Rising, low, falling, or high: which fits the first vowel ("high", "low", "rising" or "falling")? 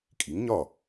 rising